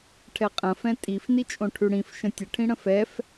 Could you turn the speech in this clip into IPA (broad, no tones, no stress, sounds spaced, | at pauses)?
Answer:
ʈʰ ɛ qʼ ə̃ f ɛ̃ tʼ i f n i t͡ʃʼ õ ʈʰ ʉ ɽ ĩ f ʃ ə̃ tʲ ə ʈʰ ĩ ɽ ə̃ f ɛ f